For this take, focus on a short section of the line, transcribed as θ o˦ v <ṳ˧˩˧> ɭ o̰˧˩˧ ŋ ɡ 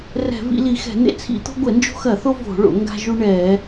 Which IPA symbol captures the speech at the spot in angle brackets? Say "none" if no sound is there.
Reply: o̤˧˩˧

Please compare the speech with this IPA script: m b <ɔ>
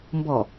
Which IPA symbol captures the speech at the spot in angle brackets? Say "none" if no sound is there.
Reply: ɔ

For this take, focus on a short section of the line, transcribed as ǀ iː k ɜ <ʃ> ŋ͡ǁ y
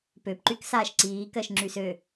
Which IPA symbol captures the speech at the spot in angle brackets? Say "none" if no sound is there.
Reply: ʃ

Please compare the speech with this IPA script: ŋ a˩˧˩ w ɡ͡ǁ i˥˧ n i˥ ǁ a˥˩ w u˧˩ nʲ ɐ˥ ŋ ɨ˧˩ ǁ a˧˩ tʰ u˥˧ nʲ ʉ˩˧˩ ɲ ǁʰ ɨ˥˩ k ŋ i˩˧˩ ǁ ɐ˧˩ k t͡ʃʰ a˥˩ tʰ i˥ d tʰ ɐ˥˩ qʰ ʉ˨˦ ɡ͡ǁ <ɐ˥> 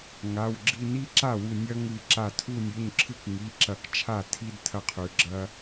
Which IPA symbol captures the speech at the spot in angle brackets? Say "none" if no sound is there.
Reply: ɐ˥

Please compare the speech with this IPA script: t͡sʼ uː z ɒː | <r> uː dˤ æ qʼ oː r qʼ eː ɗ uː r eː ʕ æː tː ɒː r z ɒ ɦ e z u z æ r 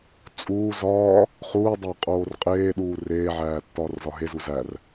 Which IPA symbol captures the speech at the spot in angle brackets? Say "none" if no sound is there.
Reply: χ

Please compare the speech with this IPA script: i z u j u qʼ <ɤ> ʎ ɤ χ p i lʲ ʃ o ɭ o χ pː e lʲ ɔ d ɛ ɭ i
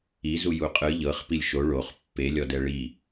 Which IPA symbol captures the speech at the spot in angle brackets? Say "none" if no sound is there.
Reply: ɯ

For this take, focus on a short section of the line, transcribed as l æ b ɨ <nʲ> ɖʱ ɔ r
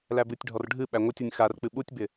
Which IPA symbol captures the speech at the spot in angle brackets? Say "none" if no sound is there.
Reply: tʲ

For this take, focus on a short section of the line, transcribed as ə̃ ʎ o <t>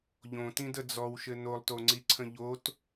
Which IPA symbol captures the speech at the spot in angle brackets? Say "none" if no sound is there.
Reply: t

